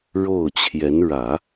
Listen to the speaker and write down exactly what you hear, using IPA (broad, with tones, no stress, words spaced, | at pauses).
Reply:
ɻo˥˩ʊ̯t͡ɕʰjɛ˧˥n ɻä˨˩˦